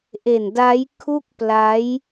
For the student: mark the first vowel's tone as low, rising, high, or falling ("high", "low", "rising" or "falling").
low